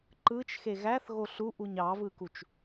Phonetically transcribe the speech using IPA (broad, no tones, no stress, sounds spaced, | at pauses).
ǃ ɯ t͡ʃ x e ɣ æ θ ɣ o ɬ u ʔ u ɲ ɑ v ɯ k u t͡ʃ